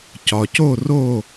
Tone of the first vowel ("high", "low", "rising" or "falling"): low